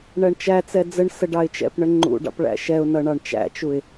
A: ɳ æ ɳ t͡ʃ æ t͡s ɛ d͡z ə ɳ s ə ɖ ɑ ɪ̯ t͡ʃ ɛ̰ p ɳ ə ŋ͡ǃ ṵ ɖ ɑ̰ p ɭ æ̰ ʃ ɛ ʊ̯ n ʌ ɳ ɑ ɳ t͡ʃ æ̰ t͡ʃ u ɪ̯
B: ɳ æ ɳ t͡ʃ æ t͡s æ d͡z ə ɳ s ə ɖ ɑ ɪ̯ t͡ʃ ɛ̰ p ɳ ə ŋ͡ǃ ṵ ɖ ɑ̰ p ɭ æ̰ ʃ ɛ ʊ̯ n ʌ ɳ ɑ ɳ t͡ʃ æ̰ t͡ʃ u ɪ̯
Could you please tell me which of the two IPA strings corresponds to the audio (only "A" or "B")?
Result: A